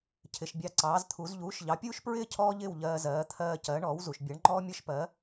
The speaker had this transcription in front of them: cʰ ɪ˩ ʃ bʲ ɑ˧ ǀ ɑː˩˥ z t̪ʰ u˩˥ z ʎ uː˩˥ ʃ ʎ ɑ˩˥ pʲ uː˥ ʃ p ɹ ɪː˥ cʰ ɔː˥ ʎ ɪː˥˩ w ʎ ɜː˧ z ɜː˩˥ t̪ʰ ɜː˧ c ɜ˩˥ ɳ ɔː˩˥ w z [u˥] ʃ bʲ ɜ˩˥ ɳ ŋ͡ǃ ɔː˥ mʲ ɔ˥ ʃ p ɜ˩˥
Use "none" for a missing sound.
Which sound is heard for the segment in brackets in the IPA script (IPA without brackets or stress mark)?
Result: u˩